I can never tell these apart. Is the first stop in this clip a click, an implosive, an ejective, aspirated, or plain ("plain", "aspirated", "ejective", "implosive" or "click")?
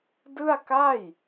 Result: plain